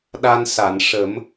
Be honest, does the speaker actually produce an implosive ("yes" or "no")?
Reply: yes